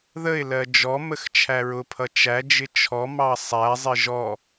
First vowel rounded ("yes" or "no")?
no